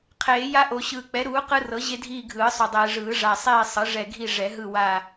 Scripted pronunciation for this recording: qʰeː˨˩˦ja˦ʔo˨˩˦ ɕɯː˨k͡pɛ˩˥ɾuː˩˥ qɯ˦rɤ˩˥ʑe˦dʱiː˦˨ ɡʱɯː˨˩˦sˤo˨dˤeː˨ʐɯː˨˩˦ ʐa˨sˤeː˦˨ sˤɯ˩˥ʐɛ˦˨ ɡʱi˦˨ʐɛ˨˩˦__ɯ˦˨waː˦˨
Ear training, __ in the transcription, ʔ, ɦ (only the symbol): ɦ